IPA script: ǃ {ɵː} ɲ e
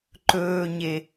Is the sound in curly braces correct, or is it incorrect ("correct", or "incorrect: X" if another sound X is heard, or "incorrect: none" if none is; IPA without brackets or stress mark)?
correct